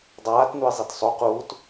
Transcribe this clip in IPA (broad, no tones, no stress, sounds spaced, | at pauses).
dˤ aː t n u ɪ̯ zˤ i t sˤ o q uː t